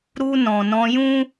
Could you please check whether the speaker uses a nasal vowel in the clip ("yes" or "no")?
yes